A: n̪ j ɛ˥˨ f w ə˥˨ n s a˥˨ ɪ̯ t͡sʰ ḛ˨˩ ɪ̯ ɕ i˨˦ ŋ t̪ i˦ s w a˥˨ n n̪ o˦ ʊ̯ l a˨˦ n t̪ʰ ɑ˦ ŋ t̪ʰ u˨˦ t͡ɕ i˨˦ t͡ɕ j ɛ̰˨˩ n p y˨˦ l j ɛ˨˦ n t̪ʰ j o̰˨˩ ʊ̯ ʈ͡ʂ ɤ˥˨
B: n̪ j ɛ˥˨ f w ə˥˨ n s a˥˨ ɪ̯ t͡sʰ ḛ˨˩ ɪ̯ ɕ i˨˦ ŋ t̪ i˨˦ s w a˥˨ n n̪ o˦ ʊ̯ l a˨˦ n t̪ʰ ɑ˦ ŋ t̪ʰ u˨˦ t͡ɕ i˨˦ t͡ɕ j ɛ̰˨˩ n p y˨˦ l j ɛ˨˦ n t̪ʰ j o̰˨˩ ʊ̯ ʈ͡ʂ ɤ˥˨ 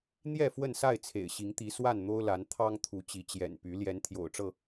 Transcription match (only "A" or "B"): B